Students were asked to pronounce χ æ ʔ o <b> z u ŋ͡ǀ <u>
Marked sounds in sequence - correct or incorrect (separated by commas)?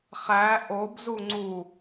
correct, correct